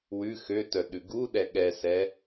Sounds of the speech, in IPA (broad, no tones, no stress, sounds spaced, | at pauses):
w ʉ x ø t œ ɗ ʉ ɡ u ɗ ɛ ɠ ɛ s ɛ